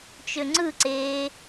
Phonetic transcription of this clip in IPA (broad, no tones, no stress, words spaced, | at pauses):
t͡ʃøŋ͡ǀɯǀeː